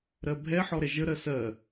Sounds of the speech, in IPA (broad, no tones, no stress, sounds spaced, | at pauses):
ɾ ɜ bʱ ɛ ħ ɔ ɾ ɛ ʒ ə ɾ ɜ s ɜ